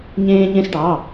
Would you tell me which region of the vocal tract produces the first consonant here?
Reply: palate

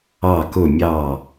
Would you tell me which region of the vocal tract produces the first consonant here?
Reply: velum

